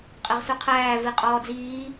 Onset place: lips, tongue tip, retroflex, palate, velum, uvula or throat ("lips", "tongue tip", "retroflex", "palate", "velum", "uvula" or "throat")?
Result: uvula